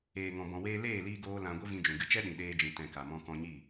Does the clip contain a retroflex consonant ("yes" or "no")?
no